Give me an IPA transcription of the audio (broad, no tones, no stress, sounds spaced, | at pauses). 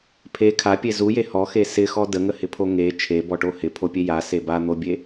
pʰ e kʰ a pʲ e z u j e h ɔ x e s ɪ x ɔ d ə ŋ ə h ɪ pʰ o ŋ e t͡ʃʰ e b ɔ ʈ o h ɪ pʰ o pʲ e j a s e b a n̪ o bʲ e